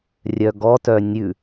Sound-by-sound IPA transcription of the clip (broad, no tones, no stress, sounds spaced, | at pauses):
rʲ œ ɡ ɔ t œ nʲ ʉ